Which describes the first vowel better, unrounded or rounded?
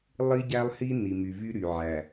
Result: unrounded